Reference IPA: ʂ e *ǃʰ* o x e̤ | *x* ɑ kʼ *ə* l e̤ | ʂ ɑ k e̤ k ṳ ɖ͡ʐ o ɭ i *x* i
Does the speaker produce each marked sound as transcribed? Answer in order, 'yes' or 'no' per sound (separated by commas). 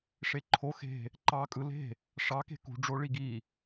yes, no, no, no